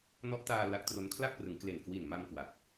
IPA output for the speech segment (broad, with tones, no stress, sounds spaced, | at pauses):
n ɔ˦˥ ʔ t aː˧ l a˦˥ k̚ t r o˦˥ n kʰ l a˥˩ k̚ p r ɯ˩˦ ŋ k l e˨˩ n k w i˨˩ n m a˧ m k w a˨˩ k̚